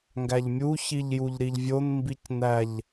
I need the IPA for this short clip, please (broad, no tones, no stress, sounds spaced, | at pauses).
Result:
ŋ ɡ æ ʎ mʲ u ç i ʎ j u ʎ ɾ i ʎ vʲ o n m b i c n æ ʎ